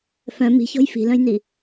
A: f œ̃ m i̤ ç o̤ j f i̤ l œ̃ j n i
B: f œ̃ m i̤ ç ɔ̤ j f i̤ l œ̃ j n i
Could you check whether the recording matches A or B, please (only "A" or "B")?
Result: B